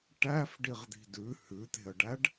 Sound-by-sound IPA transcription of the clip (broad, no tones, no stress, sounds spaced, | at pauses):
ʈ æ f ɖ i ʁ d̪ i̤ d ʉ h ʉ t̪ e̤ ə̯ ɖ æ ɖ